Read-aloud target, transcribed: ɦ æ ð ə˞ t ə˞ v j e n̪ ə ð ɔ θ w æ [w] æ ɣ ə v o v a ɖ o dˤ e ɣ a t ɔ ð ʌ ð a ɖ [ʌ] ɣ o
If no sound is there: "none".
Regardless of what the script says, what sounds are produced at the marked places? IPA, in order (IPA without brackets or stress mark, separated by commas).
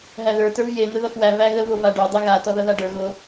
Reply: v, ə˞